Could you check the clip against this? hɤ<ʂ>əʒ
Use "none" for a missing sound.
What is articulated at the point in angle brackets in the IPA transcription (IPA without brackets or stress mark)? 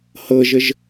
ʒ